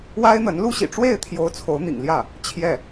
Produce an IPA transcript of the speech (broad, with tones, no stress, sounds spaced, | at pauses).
w a˥ ɪ̯ n̪ ə˧˥ n l u˥ ɕ ḭ˨˩ ʈ͡ʂ w e˥˩ ɪ̯ t̪ʰ j o˧˥ ʊ̯ t͡sʰ o˧˥ ʊ̯ n̪ ḭ˨˩ ŋ l j ä˥˩ | t͡ɕʰ j ɛ˥˩